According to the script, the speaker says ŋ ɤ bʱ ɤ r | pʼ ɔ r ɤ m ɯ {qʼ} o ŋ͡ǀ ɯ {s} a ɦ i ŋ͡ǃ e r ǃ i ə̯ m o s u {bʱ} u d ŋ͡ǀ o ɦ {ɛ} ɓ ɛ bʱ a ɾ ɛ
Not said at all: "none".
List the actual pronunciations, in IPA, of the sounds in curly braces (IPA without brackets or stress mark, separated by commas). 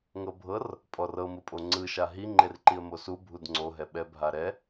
pʼ, ʃ, bʱ, ɛ